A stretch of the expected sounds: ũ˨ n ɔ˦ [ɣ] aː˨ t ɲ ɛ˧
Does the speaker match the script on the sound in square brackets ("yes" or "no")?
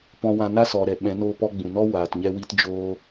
no